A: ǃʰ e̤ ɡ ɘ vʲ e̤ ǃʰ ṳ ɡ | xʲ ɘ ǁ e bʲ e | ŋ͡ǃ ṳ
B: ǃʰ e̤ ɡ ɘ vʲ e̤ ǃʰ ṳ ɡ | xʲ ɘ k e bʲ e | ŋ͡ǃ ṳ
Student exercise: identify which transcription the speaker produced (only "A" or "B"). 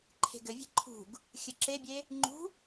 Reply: A